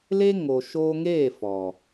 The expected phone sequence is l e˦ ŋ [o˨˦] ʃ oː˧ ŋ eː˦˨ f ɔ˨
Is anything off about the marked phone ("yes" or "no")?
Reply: yes